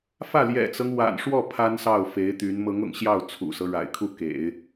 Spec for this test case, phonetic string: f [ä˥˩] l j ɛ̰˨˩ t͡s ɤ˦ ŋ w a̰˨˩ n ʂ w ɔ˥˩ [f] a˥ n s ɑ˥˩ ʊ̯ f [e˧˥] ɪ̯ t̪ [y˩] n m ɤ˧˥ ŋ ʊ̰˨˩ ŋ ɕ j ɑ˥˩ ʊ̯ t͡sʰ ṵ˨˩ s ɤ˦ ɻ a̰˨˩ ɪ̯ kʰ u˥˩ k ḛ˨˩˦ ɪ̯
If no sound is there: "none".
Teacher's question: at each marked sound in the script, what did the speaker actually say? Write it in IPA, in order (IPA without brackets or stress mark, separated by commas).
ä˥˩, pʰ, e˧˥, y˧˥